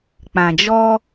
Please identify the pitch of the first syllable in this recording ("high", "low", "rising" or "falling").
low